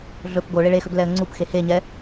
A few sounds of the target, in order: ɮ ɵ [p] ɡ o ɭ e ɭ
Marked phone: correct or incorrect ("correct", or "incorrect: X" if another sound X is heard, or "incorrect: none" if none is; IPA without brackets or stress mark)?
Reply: correct